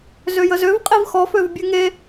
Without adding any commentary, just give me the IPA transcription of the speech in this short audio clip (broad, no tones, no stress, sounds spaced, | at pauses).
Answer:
z ø j ə z ø v qʼ i v x ɔ f ø v bʲ ʉ ŋ e